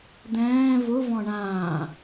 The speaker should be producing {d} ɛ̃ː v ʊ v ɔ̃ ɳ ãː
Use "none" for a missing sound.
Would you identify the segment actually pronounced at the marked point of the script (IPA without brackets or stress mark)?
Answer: d